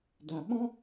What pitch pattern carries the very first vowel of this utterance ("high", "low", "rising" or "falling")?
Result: low